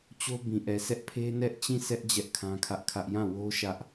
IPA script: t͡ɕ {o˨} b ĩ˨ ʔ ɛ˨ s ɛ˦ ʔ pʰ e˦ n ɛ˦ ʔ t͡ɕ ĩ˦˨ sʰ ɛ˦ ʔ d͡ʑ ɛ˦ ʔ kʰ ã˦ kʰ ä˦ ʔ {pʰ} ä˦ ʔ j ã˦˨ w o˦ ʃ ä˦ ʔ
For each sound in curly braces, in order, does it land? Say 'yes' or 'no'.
no, no

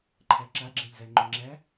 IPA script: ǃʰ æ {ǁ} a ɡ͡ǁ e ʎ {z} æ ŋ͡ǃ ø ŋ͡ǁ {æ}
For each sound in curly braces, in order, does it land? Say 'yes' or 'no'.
yes, yes, yes

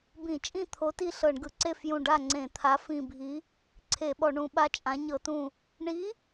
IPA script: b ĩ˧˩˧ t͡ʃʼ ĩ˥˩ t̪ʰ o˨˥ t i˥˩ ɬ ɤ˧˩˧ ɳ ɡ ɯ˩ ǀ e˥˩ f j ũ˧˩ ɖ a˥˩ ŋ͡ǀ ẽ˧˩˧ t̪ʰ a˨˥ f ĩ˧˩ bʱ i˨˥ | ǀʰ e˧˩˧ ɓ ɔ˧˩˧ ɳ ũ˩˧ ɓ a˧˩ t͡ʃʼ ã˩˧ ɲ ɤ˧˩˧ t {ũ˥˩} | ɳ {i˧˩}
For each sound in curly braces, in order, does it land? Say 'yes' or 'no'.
no, no

